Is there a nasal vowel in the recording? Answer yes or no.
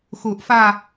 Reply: no